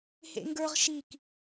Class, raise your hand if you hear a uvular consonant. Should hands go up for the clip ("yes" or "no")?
yes